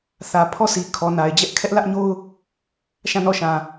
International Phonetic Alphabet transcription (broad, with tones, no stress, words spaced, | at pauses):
θä˨ pʰɔ˦˨sʰi˨ kʰɔ˨na˨ɪ̯d͡ʑɛ˦ʔ kʰɛ˦ʔlä˦ʔɲo˦ʊ̯ | ʃã˦˨nɔ˦˨ ʃã˨